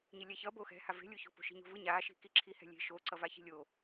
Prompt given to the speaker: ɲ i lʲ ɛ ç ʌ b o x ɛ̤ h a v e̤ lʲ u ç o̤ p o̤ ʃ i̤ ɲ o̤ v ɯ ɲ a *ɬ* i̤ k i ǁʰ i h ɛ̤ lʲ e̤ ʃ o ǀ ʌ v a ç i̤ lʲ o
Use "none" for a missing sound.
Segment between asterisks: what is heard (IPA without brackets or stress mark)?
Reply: ʃ